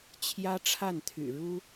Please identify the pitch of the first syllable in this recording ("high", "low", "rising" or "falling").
high